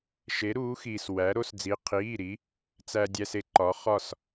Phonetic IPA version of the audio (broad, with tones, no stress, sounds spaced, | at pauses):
ʃ e˧˥ ɾ uː˧˥ x iː˧ s w æ˧˥ ɾ o˥ s d͡z i˧˥ qʰ iː˧˥˧ ɾ i˧˥ | t͡s æ˧ dʲ æ˧ s e˧˥ ǃ ɒ˧˥ χ ɒ˥˧ s